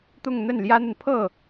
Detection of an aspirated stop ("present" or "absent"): present